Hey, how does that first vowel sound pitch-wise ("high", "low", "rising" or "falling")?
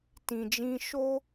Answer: low